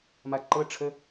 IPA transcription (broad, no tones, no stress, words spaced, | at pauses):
maǃɤʈ͡ʂʰə